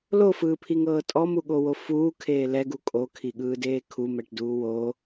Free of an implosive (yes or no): no